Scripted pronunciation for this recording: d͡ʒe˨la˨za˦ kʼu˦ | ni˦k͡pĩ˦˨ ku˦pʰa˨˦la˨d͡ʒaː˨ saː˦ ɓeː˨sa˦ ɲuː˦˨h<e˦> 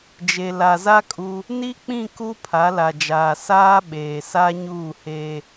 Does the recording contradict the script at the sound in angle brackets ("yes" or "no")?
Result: no